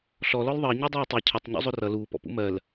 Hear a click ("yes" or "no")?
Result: no